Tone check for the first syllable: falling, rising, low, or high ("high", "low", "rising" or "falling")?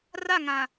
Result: falling